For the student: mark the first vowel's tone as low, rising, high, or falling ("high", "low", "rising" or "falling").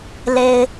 low